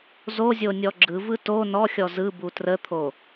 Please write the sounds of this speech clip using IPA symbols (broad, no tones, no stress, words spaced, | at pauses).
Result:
zozʲonʲɔ ɡ͡ǁɯvɯ to nɔxʲɔ zɯbu trət̪ʰo